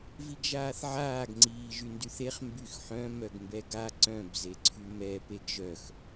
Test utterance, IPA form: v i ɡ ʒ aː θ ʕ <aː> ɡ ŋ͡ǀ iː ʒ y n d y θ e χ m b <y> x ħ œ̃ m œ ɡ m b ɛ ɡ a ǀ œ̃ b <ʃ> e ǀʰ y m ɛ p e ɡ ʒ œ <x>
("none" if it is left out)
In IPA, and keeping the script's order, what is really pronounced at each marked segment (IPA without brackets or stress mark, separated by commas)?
aː, y, z, x